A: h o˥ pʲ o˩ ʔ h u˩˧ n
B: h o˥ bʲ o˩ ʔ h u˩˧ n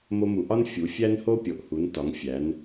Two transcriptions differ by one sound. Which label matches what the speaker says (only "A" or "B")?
A